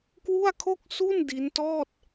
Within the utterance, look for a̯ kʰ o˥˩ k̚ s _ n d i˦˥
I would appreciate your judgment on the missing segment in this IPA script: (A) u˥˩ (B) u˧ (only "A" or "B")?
A